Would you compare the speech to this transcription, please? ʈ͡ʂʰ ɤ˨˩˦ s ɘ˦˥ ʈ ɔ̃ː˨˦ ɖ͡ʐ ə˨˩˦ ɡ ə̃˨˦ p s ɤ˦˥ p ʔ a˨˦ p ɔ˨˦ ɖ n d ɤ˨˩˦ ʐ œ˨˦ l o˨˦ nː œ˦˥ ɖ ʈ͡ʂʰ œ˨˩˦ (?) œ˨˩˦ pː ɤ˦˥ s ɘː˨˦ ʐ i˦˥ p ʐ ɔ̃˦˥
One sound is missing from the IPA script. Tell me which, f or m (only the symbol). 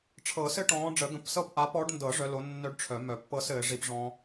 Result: m